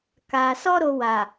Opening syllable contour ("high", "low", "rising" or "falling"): low